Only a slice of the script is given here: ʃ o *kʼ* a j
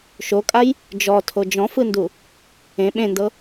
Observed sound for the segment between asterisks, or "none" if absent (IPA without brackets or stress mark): kʼ